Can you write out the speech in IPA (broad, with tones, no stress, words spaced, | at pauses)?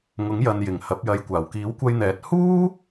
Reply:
ŋʊ˨˥ŋjɐ˨njɪ˨˩ŋ hɐ˨˥p̚jɐ˨˧jkʷaː˨˩w kiː˨˥wkʷɐ˧jn̪ɛː˨˥t̚ huː˥